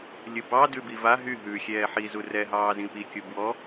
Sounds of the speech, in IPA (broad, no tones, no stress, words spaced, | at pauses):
lʲɯbɑ dʉbiva ɦy ɦʉxʲɛː ħizu rɛɦɑː zĩpikʲu bwɔ